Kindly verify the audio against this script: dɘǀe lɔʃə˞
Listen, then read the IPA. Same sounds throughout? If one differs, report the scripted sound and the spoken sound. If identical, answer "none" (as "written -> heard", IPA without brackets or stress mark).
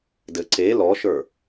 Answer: none